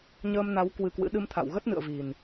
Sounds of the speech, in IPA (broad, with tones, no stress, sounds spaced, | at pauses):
ɲ əː˧ m n a˨˦ w k w ɨ˧ k w ɨ̰˧˥ ɗ ɨ˧ m t̪ʰ a̰˧˨ w ɣ ə˦˥ t̚ n ɨ̰˧˨ ə̯ v i˨˩ n